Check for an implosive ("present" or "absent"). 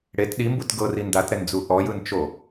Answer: present